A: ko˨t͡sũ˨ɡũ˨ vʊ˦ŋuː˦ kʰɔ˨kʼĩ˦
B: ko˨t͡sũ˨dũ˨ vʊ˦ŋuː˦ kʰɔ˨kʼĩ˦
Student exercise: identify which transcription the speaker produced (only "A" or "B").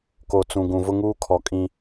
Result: A